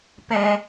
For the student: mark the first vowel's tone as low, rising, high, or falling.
high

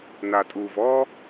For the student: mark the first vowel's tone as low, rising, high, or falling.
low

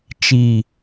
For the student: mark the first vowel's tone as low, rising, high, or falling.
low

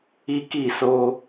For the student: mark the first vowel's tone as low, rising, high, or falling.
high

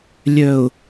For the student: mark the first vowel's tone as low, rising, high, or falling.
low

